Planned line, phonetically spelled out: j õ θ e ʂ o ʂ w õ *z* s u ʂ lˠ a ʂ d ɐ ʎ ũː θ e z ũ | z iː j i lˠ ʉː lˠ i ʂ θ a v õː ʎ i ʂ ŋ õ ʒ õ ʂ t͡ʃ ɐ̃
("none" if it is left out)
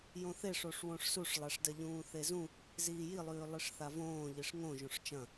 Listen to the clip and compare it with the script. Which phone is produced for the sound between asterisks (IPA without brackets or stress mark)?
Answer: ʂ